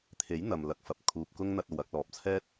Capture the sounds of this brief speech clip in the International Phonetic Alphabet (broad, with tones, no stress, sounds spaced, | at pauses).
t̪ʰ e˨˥ j n̪ ɐ˨ m l ɐ˨˥ k̚ f ɐ˨ p̚ kʰ uː˨ p̚ k ʊ˥ ŋ n̪ ɐ˧ t̚ o˨ w ɐ˧ k̚ l ɔː˨ p̚ t͡sʰ ɛː˥ t̚